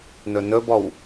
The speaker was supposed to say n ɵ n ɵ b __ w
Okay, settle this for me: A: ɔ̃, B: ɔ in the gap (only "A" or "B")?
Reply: B